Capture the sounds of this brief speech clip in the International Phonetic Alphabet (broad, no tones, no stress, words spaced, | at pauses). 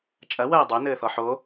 t͡ʃʼɐ wɐːdˤo nɘːθɔħo